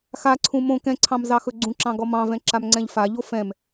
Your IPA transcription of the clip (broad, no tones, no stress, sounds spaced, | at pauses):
x a ǀʰ ũ m õ k ɛ̃ ǀʰ ɑ̃ m z ɑ x ɵ ɡ͡ǀ ũ ǁ ɑ̃ ɡ ɔ m ɑ̃ v ɛ̃ ǁ a m ŋ͡ǀ ɛ̃ ʎ f a ʎ o f ɛ̃ m